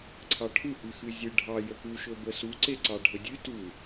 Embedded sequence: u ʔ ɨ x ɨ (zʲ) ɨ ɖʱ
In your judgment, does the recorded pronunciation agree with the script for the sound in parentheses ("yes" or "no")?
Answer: yes